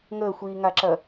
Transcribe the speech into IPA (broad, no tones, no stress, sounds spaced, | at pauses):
ŋ əː xʷ iː ŋ a ǁ ɐ